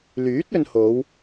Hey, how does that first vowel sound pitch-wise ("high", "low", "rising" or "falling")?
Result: rising